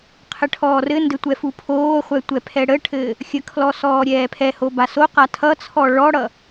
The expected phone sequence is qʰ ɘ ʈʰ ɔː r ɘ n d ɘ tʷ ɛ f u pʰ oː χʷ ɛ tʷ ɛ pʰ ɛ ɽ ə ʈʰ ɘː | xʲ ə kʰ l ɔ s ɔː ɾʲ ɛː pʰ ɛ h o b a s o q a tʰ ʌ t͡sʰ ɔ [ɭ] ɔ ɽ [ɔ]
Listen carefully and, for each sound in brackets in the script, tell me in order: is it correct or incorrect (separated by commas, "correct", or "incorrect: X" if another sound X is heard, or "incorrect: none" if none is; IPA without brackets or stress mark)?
correct, incorrect: ʌ